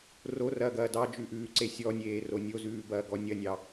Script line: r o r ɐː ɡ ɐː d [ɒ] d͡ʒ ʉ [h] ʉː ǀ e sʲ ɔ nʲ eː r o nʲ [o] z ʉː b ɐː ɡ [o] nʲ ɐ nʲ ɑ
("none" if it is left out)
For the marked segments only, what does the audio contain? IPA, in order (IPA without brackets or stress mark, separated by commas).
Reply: ɑ, ʔ, o, ɔ